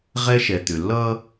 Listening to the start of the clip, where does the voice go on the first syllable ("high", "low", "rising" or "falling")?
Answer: high